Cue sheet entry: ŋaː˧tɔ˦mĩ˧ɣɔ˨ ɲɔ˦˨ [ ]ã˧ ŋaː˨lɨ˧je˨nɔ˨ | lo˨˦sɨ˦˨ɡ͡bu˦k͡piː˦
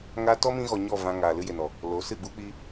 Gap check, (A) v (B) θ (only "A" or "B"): A